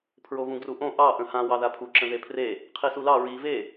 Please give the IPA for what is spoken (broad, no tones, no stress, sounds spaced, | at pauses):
pʰ ɹ o v ũ ɡ r u ʔ õ ʔ ɑ ʔ ə̃ h ã w ɑ ð a pʰ u ǁ ə̃ ð e pʰ r e | qʰ i s u l ɑ ɹ i v e